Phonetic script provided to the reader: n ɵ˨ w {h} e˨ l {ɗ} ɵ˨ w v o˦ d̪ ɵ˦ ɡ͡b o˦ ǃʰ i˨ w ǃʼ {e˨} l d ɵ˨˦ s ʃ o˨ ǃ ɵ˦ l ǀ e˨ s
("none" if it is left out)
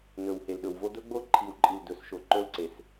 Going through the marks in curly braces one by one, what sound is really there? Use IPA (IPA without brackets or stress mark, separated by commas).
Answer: h, ɗ, i˨